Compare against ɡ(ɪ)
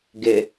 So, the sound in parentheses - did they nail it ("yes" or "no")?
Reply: yes